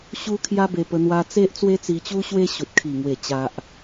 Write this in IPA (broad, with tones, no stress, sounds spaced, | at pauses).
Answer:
ɕ u˦ kʰ j a˦ b e˧ p ə˧ n̪ w a˧ t͡s e˦ ʔ t͡s w e˦ t͡s i˧ t͡ɕ u˦ ɕ w e˦ ɕ u˨ t̚ kʰ i˨˩ ŋ w e˨˩ t͡ɕ a˨ ʔ